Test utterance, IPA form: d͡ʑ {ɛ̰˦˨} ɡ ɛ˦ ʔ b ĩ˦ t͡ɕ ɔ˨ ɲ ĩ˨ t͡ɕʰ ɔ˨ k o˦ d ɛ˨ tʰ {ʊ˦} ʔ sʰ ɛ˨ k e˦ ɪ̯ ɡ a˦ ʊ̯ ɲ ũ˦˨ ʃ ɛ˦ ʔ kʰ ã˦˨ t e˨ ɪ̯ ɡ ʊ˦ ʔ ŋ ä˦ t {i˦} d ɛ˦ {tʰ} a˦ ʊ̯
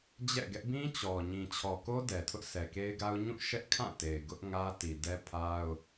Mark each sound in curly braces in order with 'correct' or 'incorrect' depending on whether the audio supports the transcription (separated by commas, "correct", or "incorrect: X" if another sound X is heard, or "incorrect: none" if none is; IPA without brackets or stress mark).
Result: correct, correct, incorrect: i˨, incorrect: pʰ